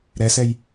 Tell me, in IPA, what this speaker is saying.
ɾ ɛ s ɛ j

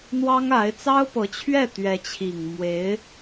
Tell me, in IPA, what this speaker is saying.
n̪ w ɑ˥ ŋ a˧˥ ɪ̯ t͡s ɑ˥ ʊ̯ p ɤ˧˥ t͡ɕʰ ɥ ɛ˥˩ t̪ ɥ ɛ˧˥ t͡ɕʰ i˨˩ ŋ m w e˧˥ ɪ̯

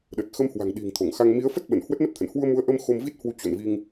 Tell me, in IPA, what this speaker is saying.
ɗ ə˨˩ t̚ x ə˧ m h w a̤˨˩ ŋ ɗ i̤˨˩ ŋ t̪ʰ o˧˩ ŋ x a˧ ŋ m i˨˦ ə̯ f ə˦˥ t̚ ɓ ə˧˩ n h w ə˦˥ t̚ n ə˦˥ p̚ t̪ʰ ə̰˧˨ n h w u˧ ə̯ m u˨˦ ə̯ ʔ ə˧ m x o˧ m v i˦˥ t̚ h w u˨˦ t͡ɕ o̰˧˨ n v i˧ ŋ

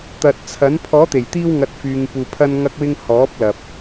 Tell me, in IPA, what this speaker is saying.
t̪ ɐ˨ t̚ t͡sʰ ɐ˨˥ n pʰ ɔː˨˥ t̪ e˨˩ j t̪ iː˧ w ŋ ɐ˨˥ t̚ f yː˨ ŋ p uː˨ pʰ ɐ˧ n ŋ ɐ˧ k̚ w ɪ˧ ŋ h ɔː˨˥ p̚ l ɐ˨ p̚

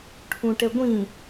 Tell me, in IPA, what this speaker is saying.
ʈʰ ũ ʈ ɛ ɡʷ ĩ

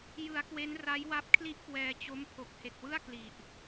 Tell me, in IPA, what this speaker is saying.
j ɯ˩˦ a̯ k w e˦˥ n r a˦˥ j w a˦˥ p̚ kʰ l i˥˩ ʔ k w ɛː˧ t͡ɕ o˦˥ m pʰ o˨˩ k̚ h e˨˩ k̚ w ɯ˥˩ a̯ k l i˨˩ ʔ

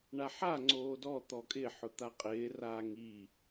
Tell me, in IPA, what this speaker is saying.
ɳ a ħ a ŋ͡ǀ oː d ɔ t̪ ɔ kʼ ɪ ħ ʊ t̪ a qʼ ɪː r aː ŋ i

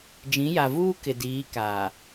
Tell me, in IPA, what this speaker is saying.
d͡ʒ ĩ˨˦ j a˨ v uː˦ k ɪ˨ d iː˨˦ k aː˨

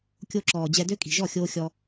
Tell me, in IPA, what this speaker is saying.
kʲ o˧ ǁ ɔː˨ d͡ʑ ɛ˧ d ø˦ kʼ i̤˨ ʒ ɔ˦˨ xʲ oː˧ xʲ ɔ˧

